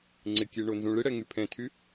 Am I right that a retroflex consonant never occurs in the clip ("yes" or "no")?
no